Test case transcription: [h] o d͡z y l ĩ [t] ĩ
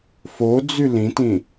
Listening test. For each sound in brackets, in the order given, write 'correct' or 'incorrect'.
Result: incorrect: f, correct

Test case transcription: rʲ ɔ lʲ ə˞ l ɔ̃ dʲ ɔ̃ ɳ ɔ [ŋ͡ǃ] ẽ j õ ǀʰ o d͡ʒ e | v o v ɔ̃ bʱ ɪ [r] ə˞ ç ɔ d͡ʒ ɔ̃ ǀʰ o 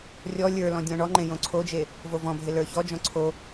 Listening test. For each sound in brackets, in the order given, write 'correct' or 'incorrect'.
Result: correct, incorrect: l

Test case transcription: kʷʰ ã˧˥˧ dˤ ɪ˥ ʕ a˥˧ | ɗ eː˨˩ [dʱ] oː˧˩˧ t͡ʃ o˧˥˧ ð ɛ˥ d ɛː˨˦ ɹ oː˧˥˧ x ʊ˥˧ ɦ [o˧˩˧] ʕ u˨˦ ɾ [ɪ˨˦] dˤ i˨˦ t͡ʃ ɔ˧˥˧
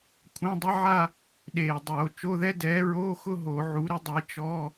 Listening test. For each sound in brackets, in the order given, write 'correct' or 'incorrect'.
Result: incorrect: dˤ, correct, incorrect: ɪ˥

